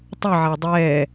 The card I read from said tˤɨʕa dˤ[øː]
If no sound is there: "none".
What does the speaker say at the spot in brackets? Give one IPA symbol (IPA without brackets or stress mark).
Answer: ɛː